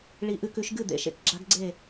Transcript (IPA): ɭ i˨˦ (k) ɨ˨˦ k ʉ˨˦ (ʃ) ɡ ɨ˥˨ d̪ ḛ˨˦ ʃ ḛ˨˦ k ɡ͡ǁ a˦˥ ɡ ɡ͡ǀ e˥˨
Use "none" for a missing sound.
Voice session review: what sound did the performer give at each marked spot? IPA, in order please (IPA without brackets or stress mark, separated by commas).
ʔ, ʃ